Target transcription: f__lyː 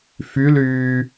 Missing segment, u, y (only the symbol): y